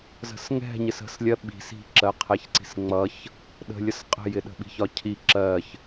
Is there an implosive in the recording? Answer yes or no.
yes